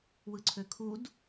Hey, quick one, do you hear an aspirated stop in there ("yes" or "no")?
yes